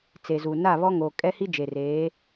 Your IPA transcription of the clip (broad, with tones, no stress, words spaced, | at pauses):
t͡se˨zu˨ na˦˨βɔ˦ŋoː˨ kʼɛ˦hi˦d͡ʒe˨ reː˨˦